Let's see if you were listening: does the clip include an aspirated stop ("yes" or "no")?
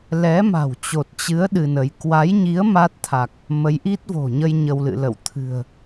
yes